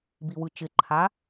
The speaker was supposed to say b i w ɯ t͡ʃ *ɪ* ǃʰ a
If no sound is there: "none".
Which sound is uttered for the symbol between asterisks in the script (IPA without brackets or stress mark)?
ɪ